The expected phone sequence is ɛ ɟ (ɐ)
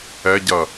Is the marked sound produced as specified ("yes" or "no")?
yes